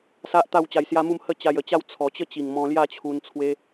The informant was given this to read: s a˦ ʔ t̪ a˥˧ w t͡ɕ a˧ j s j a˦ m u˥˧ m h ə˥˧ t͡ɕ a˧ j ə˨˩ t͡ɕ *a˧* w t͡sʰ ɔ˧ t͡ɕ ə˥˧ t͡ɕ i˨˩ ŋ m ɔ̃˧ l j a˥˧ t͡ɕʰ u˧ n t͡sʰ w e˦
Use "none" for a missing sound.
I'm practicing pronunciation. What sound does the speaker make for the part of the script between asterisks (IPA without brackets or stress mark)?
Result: a˥˧